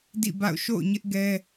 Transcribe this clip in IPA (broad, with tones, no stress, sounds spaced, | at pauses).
d ḭ˦˨ b a̰˦˨ ʊ̯ ʃ o̰˦˨ ʊ̯ ɲ ɪ˦ ʔ ɡ ɛ˦